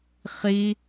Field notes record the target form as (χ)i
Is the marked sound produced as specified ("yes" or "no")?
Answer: yes